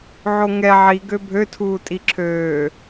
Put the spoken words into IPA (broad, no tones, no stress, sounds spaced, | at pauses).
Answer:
ʕ o ŋ ɛ ʕ i ɡ ø bʱ ø tʰ uː tʼ i ǁʰ øː